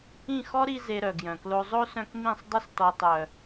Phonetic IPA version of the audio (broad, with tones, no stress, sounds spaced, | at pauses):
ĩ˦˨ x ɔ˦ ɾ i˧ z e˧ ɾ œ˨ ɡ j œ̃˨ k l o˧ zˤ o˦ s œ̃˧ k m ĩ˦˨ sˤ dˤ ə˧ s t ɔ˨ tˤ œ˨